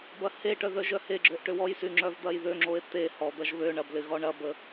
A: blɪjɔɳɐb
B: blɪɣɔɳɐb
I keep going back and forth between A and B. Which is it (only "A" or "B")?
B